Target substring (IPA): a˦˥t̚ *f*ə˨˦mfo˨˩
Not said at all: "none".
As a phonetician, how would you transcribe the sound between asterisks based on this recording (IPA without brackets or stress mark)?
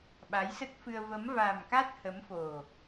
h